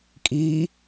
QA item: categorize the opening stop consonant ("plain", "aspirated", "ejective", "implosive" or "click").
ejective